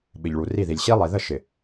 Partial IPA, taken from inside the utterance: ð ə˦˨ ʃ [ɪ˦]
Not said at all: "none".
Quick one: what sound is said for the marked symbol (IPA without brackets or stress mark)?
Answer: ɪ˨